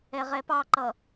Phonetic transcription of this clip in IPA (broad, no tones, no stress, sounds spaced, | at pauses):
ɛ ʁ ɛ p ɑ ǃ ʌ